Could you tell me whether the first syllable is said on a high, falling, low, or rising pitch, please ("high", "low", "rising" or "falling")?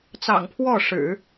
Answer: low